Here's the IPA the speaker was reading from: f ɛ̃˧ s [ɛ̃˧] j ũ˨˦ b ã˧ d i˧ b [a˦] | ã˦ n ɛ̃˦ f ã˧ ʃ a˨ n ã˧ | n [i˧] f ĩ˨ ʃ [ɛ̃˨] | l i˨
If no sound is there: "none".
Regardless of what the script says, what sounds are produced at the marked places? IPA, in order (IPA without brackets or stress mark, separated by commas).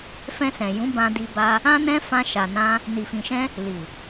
ɛ̃˨, a˧, i˨, ɛ̃˧